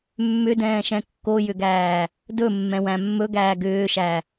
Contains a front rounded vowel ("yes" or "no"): yes